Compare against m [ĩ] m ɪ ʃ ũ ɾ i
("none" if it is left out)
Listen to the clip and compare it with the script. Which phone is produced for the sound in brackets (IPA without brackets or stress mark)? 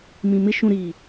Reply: ĩ